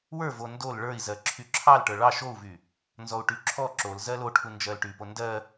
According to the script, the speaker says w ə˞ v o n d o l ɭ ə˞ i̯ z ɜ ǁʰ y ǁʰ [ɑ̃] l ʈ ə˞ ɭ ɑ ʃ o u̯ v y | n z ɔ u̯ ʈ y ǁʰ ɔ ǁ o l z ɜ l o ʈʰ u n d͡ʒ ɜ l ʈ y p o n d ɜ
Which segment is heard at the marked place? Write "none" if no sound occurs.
ɑ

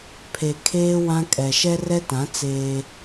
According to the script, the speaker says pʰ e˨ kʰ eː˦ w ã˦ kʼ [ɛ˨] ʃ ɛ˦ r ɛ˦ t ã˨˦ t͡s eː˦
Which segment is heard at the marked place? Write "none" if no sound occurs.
ɛ˨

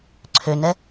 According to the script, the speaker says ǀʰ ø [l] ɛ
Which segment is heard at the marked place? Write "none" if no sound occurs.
n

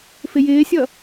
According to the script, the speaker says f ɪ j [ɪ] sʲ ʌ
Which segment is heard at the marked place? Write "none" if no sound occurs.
ɪː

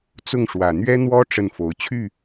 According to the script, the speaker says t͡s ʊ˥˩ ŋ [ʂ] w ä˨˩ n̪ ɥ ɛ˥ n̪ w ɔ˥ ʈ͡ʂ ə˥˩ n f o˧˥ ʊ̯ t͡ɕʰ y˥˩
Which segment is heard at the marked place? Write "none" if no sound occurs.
ʂ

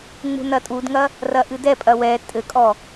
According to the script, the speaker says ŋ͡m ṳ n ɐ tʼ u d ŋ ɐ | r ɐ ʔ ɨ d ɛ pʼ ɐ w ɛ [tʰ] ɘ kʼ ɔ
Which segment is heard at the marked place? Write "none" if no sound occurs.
tʼ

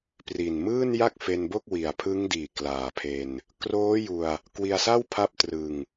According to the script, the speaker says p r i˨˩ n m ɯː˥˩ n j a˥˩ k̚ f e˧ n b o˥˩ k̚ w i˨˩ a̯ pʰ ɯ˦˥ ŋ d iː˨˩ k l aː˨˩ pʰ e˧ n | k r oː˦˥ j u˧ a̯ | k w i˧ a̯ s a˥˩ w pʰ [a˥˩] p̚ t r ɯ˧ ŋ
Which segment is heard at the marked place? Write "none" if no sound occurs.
a˦˥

